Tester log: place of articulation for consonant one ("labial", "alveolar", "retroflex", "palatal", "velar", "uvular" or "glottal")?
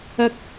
velar